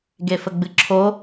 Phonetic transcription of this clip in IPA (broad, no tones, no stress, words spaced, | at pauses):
ɡefəɡ͡bɨǁʰo